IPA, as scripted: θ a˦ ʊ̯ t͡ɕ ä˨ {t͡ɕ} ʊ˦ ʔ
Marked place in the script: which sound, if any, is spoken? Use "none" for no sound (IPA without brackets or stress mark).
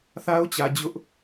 d͡ʑ